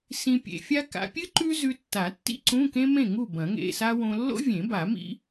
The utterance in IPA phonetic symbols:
s ĩ˧ pʲ ḛ˧ fʲ a˥ k a̰˧ pʲ ɨ˥ ǃ ʉ˥ z ʉ˧ tː a˨˩˦ tː ḭ˥ ǀ ũ˧˥˧ k ẽ˥ m ẽ˥˨ ŋ u˥˨ b ɐ̃˨˩˦ ŋ ḛ˧˥˧ s a˥ w õ˧ lː o̰˥ vʲ ẽ˨˩˦ b a˨˩˦ m ḭ˥

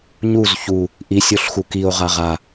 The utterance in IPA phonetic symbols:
ɲ u z ç u | ʔ i sʲ o ɬ x u k i o̯ ʁ a ʁ a

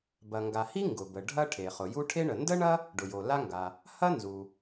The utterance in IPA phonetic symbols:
b ɐ˩ ŋ ɡ a˩ h i˥ ŋ ɡ ʊ˩ b ə˩ ɖʱ ɐ˥ ʈʰ e˩ χ ʊ˩ j u˥ ʈʰ e˥ ɳ ə˩ n d ə˥ ɳ ɐ˥ | ɖ ʊ˩ j o˩ l a˥ ŋ ɡ a˩ | h ɐ˥ n z u˩

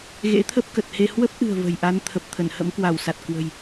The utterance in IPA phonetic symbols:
ɣ ḛ˧˥ t̪ʰ ə˦˥ p̚ k ə˨˩ t̚ h e˧ h w ə˦˥ p̚ ʔ ɨ̤˨˩ ə̯ v ə̤˨˩ j ʔ a˨˦ n t̪ʰ ə˨˩ p̚ t̪ʰ ə˧˩ n h ə̰˧˥ m k w a˧˩ w s a˨˩ t̚ k w ə̤˨˩ j

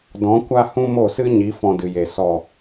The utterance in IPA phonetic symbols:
d ɔ̃˨˦ kʷ a˦ h ũ˦ m o˦˨ s ɨ˦ ɲ i˨˦ f ɔ̃˧ d ɨ˨ j e˨ s ɔ˨

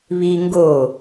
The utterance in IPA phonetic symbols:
β i ŋ ɡ o

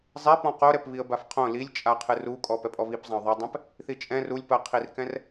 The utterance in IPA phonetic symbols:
zˤ e p ɔ̃ q o ɾ ɛ p β i ə̯ b a f qʰ õ l i lʲ t͡ʃʼ a qʰ ɨ r u kʼ ɔ p ɛ pʼ ɔ β i p zˤ ã ʊ̯ ðˤ ɐ dˤ ɛ̃ p | θ i t͡ʃʼ ɛ̃ r u lʲ p ɐ qʰ i r k ɛ̃ r

